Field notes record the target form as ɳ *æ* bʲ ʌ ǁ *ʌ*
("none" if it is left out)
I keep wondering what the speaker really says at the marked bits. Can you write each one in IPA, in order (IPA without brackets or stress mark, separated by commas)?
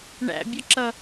æ̰, ʌ